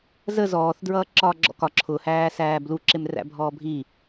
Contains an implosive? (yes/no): no